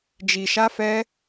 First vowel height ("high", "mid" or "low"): high